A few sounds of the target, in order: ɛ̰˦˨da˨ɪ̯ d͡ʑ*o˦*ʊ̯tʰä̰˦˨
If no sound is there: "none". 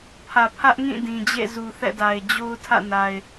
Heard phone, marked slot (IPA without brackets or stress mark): o˦